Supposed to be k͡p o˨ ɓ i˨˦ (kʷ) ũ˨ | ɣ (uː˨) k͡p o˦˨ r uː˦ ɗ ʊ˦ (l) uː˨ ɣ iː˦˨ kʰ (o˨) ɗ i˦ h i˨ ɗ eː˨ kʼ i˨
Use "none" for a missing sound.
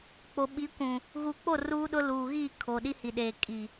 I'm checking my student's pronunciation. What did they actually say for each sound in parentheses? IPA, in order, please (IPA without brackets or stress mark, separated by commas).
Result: kʷ, uː˨, l, o˨